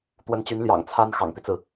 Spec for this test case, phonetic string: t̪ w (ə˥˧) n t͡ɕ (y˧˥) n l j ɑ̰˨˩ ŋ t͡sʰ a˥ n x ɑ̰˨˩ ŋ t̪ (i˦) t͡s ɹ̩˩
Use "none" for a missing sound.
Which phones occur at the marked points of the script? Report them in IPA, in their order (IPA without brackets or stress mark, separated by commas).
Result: ə˧˥, y˧˥, i˦